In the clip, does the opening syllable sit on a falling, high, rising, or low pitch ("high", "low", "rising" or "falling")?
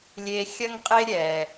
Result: low